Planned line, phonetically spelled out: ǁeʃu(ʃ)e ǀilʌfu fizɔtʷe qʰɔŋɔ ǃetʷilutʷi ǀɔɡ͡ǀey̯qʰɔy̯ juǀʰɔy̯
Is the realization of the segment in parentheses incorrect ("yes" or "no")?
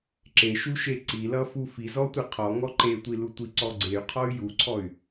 no